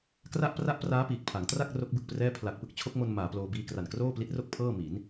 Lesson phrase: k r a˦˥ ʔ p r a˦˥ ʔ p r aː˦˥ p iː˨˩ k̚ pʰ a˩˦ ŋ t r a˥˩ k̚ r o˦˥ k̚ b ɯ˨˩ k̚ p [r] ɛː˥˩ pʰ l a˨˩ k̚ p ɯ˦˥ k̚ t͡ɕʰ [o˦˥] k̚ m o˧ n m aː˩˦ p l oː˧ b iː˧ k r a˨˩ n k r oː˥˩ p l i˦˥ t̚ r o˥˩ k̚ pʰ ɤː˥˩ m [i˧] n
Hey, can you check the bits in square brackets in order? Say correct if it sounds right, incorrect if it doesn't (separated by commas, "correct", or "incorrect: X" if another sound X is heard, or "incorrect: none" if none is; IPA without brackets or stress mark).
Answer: correct, correct, incorrect: i˩˦